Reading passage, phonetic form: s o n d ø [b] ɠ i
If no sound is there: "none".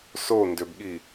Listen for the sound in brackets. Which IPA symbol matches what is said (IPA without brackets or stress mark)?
b